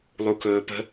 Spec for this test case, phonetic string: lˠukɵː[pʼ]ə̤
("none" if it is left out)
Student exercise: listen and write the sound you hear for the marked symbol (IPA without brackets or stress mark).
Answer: p